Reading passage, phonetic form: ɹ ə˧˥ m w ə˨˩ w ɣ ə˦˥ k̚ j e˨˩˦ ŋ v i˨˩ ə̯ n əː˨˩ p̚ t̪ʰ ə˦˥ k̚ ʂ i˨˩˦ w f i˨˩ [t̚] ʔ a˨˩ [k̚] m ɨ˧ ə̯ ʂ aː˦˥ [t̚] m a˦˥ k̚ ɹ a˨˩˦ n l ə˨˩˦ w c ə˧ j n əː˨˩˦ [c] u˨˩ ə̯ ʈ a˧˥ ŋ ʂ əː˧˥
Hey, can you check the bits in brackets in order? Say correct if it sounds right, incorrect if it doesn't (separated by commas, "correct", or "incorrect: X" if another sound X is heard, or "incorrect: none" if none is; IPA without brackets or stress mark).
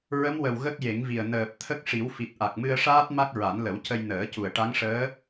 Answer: correct, correct, correct, correct